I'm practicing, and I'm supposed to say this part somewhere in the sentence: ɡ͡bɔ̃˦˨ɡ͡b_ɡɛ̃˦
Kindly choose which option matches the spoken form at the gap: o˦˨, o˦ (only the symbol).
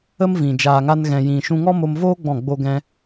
o˦